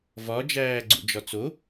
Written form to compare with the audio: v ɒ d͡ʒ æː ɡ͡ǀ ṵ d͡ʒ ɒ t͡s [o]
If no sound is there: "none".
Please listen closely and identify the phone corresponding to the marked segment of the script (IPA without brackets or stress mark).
o